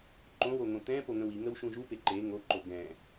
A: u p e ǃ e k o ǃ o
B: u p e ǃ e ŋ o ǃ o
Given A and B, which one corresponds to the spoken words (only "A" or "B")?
B